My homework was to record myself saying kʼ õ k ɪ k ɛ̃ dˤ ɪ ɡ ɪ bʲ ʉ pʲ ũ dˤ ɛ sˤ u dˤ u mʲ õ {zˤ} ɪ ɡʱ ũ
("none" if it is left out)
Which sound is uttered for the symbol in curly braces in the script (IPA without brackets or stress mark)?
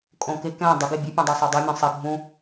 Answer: sˤ